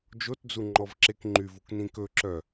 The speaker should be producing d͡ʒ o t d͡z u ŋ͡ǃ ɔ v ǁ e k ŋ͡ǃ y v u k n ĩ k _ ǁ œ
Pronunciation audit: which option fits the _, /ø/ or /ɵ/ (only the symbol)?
ɵ